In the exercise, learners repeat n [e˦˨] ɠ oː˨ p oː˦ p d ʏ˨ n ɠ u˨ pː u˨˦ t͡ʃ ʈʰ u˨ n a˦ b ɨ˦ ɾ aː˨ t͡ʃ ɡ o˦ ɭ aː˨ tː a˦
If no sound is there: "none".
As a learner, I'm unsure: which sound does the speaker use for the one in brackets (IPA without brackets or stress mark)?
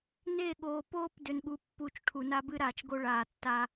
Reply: e˦˨